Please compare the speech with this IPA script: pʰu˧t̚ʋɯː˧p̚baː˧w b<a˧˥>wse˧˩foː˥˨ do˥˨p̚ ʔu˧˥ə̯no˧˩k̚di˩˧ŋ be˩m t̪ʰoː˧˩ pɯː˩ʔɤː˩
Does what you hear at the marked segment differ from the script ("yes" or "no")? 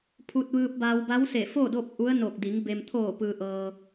no